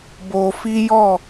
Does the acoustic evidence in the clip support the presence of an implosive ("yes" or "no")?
no